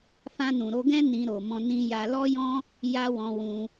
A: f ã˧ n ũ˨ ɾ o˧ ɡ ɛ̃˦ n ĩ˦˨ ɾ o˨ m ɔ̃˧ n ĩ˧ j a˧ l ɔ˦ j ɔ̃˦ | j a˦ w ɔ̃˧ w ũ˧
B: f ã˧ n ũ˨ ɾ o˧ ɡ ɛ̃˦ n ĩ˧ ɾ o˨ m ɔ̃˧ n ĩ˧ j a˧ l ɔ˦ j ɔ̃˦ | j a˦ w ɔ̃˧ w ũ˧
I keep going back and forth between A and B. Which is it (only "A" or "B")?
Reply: B